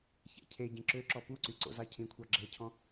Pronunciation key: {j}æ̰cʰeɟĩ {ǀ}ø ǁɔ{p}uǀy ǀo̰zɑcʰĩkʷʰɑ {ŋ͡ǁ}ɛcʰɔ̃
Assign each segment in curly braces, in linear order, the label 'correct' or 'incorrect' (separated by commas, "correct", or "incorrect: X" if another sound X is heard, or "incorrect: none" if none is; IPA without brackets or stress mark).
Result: incorrect: ç, incorrect: ǁ, correct, incorrect: ɡ͡ǁ